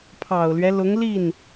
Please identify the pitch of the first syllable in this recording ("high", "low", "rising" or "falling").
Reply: low